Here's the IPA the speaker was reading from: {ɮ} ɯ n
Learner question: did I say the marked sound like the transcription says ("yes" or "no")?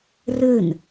no